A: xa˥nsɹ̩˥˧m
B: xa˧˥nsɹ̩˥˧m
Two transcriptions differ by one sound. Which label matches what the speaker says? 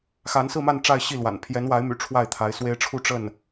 B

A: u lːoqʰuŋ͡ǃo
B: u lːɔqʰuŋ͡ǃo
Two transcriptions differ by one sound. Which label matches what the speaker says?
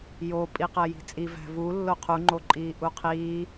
A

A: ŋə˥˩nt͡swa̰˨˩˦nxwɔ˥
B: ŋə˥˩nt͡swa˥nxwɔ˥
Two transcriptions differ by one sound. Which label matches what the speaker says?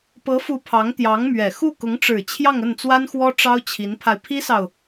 B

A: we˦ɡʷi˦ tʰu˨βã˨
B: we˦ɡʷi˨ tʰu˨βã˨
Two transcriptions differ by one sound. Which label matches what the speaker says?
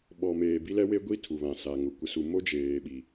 A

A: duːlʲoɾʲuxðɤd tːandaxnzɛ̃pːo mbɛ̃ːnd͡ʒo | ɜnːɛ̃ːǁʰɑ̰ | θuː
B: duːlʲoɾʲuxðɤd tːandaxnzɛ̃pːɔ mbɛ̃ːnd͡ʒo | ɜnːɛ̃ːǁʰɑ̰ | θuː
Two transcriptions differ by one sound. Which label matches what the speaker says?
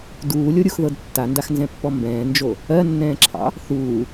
B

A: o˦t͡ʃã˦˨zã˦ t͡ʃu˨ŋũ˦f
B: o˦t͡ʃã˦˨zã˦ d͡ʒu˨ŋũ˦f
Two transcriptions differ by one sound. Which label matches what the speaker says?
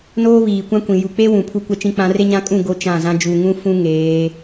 B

